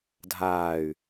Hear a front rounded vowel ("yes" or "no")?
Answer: yes